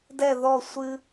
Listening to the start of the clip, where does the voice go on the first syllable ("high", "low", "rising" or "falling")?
falling